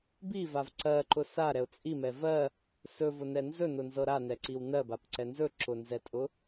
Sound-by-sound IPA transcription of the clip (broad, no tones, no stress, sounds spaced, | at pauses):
b i v a v ǀ ɜ ǃ ʊ s a ɾ ɛ ʊ̯ t͡sʼ i m ɛ v ɜ | s ɵ v ʊ n ɛ n z ɵ n ʊ n z ɤ ɾ a n ɛ ǀ i w n ɜ b a p ǀ ɛ n z ɵ ǁ ʊ n z ɛ tʼ ʊ